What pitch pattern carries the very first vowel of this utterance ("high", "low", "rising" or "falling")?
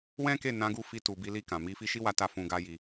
high